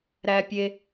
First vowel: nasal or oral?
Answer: oral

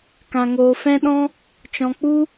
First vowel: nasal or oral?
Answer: nasal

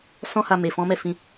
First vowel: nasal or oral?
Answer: nasal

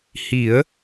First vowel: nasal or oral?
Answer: oral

